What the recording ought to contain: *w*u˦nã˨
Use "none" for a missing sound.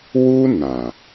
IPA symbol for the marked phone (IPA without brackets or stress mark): w